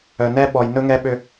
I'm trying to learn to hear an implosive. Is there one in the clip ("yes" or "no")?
yes